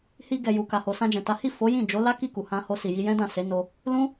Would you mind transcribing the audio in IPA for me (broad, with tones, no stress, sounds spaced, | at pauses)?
h i˧ ɡ ɛ˨ j u˨ k a˨ h o˨ s ã˧ d͡ʒ ɛ̃˨ t a˨˦ h i˦˨ f o˨˦ j ĩ˦˨ d͡ʒ o˨˦ l a˦ k i˦˨ k u˨ h ã˧ h o˧ s i˨ j i˧ j ɛ̃˦ d ã˦˨ s e˨˦ n o˧ | l ũ˦